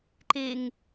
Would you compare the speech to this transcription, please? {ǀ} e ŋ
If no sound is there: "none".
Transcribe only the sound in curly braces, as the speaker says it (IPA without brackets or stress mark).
ǃ